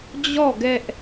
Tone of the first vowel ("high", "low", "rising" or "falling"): falling